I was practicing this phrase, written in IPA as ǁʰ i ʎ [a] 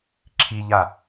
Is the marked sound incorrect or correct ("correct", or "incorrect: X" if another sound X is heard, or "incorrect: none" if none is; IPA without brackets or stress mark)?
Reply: correct